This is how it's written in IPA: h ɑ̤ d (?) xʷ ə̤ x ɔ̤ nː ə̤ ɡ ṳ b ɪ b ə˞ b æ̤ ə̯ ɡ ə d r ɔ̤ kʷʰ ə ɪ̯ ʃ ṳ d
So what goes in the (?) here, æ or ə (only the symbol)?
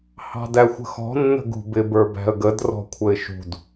æ